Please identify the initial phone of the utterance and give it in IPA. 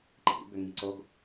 ǃ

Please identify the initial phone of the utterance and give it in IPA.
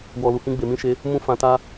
w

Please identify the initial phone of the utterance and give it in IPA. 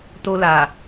t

